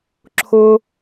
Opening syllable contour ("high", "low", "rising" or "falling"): high